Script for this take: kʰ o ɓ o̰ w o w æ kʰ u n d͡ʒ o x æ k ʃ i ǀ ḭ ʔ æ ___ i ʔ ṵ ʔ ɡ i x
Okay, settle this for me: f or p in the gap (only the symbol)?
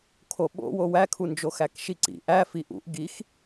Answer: f